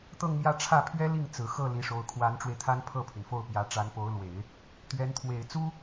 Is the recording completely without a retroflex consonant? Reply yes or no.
no